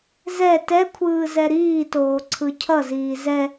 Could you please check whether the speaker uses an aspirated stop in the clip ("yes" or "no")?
yes